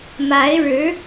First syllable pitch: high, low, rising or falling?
rising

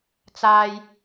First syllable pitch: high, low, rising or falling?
high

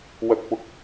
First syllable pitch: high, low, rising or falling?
high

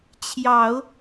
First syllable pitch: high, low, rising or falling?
low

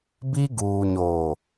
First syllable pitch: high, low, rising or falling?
high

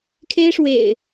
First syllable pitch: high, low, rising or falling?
high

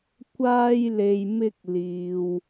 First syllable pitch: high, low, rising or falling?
high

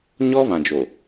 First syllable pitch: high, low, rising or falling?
high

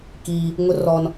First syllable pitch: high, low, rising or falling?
high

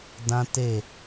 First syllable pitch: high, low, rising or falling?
high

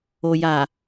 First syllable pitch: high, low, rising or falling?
low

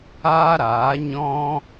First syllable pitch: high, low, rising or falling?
high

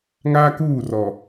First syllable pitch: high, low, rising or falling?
high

